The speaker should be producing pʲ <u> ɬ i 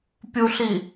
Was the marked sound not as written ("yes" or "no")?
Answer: no